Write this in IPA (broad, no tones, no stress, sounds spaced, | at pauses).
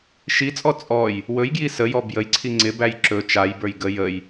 ʃ i t͡sʼ ɔ t͡sʼ ɔ j | w ɵ j ɡ j i s ə j ɔ b j ə j ǀʰ i ŋ͡ǀ ɪ b æ j ǁ ɵ t͡ʃ a j b ə˞ j ɡ ə j ə j